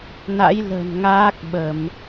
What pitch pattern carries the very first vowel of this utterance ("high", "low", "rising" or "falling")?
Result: rising